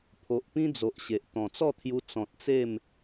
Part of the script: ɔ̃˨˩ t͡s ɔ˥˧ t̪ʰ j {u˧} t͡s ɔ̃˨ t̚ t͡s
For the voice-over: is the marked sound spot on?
yes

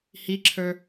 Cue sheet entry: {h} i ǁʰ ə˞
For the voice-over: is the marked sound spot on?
yes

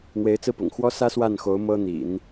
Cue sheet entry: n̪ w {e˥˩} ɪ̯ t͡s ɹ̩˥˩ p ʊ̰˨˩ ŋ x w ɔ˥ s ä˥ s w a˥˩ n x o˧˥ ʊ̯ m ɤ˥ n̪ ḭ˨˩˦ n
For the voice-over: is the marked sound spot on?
no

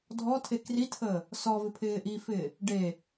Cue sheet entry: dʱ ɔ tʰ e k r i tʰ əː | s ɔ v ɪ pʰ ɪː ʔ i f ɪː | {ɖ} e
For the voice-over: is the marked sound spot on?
yes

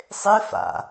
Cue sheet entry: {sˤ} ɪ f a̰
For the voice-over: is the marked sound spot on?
yes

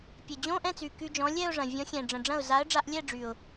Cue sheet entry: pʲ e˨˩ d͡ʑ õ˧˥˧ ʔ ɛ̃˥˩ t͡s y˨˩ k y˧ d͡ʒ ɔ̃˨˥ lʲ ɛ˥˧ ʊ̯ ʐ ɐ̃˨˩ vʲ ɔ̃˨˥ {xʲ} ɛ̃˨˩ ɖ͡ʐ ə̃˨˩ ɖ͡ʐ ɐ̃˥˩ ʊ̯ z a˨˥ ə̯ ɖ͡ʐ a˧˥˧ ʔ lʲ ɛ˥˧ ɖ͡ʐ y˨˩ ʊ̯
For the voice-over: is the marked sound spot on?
yes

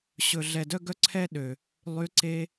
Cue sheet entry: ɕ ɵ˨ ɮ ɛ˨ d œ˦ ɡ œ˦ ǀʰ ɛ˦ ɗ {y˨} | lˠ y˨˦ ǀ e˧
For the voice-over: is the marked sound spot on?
no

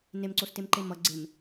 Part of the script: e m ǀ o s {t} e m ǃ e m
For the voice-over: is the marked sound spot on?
yes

